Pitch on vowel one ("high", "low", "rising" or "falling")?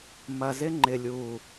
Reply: low